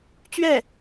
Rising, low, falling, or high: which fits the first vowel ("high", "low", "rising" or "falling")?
falling